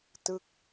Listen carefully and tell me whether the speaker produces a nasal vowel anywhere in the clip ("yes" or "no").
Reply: no